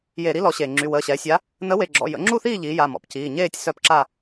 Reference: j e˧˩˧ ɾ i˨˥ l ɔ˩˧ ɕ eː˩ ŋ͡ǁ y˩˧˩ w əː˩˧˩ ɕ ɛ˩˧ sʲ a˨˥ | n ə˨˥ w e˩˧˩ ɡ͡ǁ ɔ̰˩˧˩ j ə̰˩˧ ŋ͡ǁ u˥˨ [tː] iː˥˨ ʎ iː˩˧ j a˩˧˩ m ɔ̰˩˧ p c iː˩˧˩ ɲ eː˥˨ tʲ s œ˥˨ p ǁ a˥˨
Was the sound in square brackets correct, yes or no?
no